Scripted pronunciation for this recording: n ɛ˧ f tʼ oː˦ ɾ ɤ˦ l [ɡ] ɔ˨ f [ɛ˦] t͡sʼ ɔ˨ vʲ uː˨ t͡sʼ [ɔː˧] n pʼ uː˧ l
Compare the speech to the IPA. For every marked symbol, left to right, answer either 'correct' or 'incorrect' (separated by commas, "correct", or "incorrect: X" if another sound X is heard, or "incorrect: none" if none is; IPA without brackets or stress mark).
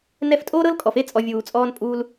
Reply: incorrect: kʼ, incorrect: e˦, correct